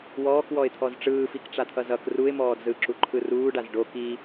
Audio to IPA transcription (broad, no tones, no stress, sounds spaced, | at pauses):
w ɔː k w ɔ ɪ̯ t̪ʰ ɔ z ʈ͡ʂ ɯː f i k ʈ͡ʂ a t̪ʰ ʌ z ʌ k r u ɪ̯ m ɔː d z ɯ ǁ u ǃʰ ɯ r uː ɖ a z ɖ o k i